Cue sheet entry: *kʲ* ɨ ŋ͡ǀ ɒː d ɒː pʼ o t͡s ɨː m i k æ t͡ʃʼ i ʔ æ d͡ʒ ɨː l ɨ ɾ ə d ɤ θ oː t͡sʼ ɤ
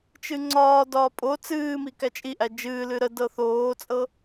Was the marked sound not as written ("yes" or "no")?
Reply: yes